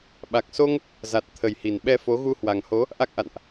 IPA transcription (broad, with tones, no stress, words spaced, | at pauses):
ɓa˨˩k̚so˧ŋ | za˨˩t̚ t̪ʰə˨˩jhi˨˩n ɓɛ˧fo˨˦ ɣu˧hwa˨˩ŋho˨˦ | ʔa˦˥k̚ʔa̰˧˨nʔ